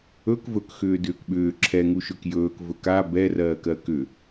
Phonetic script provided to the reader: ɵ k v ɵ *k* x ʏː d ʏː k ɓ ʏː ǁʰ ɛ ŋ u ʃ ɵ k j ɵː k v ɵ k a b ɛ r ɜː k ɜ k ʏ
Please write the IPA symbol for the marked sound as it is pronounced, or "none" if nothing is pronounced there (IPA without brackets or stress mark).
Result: k